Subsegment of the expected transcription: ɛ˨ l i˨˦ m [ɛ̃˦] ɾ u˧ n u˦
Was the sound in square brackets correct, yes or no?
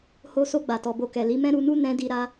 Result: yes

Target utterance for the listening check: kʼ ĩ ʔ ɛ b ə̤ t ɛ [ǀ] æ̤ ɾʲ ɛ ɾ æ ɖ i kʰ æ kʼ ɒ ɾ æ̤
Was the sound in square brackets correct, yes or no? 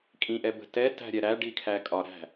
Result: no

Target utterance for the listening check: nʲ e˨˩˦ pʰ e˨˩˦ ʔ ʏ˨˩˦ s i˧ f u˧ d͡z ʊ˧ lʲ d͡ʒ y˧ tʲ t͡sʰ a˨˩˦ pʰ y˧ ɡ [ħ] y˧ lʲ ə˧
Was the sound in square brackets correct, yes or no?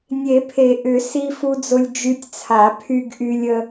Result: no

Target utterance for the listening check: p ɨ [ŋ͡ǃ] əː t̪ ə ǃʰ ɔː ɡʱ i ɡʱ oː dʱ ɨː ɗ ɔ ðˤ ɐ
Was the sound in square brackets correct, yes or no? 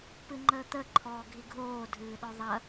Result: yes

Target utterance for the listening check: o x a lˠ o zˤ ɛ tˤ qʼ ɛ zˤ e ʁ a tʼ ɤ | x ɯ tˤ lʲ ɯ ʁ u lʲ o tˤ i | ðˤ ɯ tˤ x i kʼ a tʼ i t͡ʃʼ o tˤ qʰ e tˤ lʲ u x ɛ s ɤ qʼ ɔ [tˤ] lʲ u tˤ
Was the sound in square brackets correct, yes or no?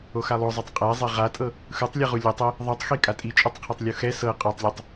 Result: yes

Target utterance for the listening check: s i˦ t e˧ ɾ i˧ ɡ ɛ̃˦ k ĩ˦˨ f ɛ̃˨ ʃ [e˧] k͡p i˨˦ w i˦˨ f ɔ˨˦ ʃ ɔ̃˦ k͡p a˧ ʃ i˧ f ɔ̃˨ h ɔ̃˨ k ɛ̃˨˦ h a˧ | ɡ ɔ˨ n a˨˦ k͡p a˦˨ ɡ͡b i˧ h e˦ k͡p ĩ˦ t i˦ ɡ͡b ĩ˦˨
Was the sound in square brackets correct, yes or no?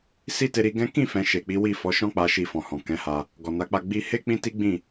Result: no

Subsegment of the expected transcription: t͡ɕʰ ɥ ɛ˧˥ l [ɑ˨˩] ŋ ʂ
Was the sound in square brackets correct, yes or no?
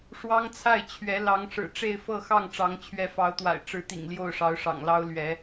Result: no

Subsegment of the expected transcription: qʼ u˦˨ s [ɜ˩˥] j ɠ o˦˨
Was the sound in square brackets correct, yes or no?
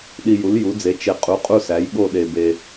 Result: no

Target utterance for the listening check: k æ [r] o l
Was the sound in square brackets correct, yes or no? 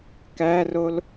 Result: yes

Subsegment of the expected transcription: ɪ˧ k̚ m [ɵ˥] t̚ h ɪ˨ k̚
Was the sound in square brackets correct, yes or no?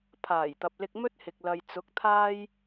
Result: yes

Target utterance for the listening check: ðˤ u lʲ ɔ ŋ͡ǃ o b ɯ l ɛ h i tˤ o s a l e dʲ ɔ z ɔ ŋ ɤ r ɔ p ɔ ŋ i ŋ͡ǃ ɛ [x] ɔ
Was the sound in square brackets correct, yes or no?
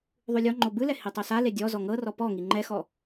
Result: yes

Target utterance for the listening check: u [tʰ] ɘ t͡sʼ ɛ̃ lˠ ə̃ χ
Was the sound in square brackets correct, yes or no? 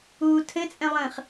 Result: yes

